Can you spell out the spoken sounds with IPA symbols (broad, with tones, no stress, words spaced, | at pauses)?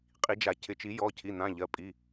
qʼi˨˩˦d͡ʒa˨˩˦cʰɪ˩˧˩ t͡ʃi˨˩˦ jɔ˩˧˩cʰi˩˧˩n̪ã˩˧˩ ʎɜ˩˧˩pʼi˩˧˩